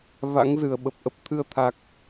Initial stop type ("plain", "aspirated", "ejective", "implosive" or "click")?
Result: implosive